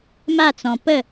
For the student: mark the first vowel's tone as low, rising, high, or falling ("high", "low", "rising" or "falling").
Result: falling